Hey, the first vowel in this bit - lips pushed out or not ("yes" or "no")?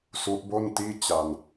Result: yes